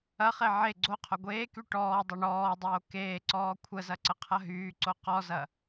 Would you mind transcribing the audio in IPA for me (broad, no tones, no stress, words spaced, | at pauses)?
ɐχe ʕe ɡ͡ǀoqʰo ɡʷeːky ʈɔːdˤɐ ɳɔːdˤoː keːǀɔː kʷʰəzɐǀəqʰɐ ɦyːǀo qɔzɐ